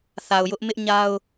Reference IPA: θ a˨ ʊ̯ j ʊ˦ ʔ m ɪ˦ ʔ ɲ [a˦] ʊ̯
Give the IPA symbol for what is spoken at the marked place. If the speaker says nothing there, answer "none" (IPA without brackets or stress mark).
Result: a˦